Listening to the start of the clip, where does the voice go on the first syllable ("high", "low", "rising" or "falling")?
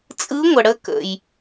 rising